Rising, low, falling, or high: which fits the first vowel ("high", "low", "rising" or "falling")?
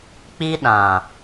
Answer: high